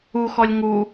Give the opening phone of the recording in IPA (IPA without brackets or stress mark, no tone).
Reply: u